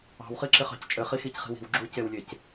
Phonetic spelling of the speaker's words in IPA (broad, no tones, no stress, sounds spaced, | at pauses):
ɑ̤ w χ i ǁ ɪ χ ɑ̤ c t͡ʃʼ ɘ χ i x i c χ i̤ w i̤ w ɡ͡ǁ u c e w lʲ e c